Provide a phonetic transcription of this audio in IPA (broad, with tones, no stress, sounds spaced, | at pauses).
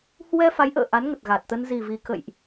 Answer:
h w ɛ˧ f a˨˦ j ʔ ə̰ː˧˨ ʔ a˨˦ n ŋ ə˨˩ t̚ ɣ a˨˩ t̚ t̪ ə˧ n z i˨˩ v i˨˩ k ə̰˧˨ j ʔ